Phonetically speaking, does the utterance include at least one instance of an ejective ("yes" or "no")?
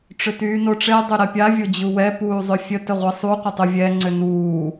no